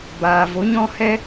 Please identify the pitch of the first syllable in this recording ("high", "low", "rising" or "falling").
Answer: low